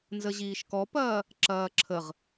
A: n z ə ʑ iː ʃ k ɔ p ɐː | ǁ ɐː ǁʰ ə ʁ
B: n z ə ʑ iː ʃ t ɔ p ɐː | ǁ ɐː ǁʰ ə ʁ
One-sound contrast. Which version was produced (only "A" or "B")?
A